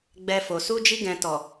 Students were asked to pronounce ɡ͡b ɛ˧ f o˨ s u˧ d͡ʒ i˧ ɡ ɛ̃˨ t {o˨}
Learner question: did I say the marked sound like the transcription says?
no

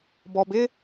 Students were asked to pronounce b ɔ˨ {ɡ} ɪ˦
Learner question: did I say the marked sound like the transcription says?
no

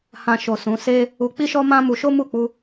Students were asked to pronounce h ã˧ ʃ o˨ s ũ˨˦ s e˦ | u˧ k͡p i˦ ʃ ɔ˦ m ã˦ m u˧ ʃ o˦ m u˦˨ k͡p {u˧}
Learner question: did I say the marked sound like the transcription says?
yes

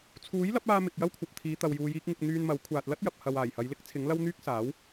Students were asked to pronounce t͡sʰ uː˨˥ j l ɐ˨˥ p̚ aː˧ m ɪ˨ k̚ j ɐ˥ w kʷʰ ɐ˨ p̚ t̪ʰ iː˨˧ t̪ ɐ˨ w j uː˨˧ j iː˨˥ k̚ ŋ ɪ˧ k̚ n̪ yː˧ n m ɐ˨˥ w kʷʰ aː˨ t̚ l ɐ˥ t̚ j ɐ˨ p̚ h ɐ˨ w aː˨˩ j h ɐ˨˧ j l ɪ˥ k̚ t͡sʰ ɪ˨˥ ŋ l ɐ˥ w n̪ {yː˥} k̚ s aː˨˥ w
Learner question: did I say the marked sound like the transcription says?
yes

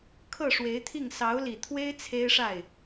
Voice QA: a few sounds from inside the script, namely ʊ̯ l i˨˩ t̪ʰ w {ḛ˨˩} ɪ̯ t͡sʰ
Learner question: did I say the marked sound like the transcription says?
no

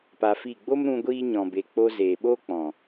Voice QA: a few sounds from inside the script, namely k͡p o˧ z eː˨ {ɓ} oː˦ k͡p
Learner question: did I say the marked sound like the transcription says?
yes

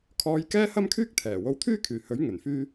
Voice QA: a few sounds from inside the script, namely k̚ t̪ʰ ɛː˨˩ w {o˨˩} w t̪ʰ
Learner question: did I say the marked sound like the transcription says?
no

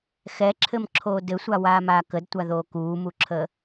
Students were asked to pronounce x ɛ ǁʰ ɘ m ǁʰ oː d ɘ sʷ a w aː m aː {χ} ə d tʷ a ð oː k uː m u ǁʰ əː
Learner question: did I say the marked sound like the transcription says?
no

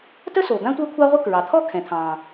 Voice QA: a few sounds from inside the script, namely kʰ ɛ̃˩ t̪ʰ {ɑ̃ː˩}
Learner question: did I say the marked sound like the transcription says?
yes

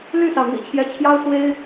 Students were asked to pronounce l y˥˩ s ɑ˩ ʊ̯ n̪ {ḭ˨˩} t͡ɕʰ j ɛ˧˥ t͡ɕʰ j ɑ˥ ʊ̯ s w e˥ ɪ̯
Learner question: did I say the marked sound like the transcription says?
yes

